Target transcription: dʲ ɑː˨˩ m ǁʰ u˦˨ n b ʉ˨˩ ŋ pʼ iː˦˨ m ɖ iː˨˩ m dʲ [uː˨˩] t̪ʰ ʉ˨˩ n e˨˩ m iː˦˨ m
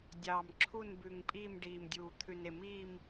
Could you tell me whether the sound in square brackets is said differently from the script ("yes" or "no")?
no